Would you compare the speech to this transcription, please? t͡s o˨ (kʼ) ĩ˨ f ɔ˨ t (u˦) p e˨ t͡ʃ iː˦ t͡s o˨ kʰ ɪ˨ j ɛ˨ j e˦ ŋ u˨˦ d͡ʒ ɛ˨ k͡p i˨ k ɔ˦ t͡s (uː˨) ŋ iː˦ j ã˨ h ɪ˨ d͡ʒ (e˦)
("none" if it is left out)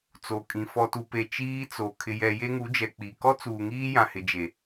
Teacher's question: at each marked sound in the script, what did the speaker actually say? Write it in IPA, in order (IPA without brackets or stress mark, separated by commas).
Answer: kʼ, u˨, uː˨, e˨